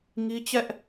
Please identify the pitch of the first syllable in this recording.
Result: high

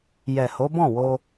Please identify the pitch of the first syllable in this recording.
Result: low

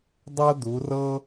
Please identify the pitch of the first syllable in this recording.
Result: high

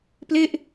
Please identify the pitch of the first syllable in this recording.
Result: falling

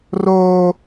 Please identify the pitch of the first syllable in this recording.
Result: high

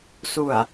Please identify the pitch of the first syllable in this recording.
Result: low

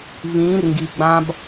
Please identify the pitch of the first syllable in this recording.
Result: rising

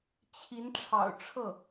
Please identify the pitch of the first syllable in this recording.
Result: rising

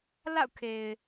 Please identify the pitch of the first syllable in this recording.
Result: falling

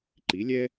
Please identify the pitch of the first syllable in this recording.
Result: rising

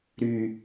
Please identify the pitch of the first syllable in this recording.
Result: low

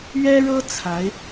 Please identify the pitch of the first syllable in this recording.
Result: high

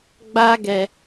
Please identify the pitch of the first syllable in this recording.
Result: high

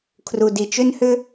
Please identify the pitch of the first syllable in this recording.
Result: low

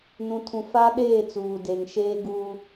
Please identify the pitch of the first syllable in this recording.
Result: low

